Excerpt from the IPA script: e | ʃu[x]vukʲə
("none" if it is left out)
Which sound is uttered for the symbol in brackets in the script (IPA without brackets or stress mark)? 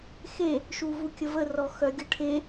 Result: none